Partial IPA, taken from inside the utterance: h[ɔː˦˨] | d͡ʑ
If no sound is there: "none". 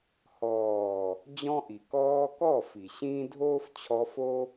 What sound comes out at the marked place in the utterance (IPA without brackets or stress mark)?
ɔː˨